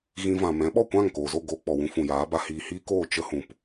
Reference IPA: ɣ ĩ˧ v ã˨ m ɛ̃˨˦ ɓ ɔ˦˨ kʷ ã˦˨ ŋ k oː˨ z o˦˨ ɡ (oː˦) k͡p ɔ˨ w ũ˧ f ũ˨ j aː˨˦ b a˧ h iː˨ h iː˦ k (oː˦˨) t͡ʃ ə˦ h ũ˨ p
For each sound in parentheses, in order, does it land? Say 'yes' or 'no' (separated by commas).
no, yes